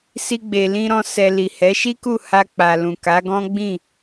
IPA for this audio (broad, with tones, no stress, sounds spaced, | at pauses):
s i˧ ɡ͡b e˨ l ĩ˧ ɾ ɔ̃˧ s ɛ˧ l i˨ h ɛ˨˦ ʃ i˦ k u˦˨ h a˧ k͡p a˨ l ũ˨ k a˨˦ ɡ ɔ̃˦ ɡ͡b ĩ˦˨